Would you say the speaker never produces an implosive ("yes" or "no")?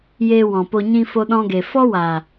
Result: no